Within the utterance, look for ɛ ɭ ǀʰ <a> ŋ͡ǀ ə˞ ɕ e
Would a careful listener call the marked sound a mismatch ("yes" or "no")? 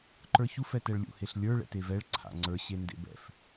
yes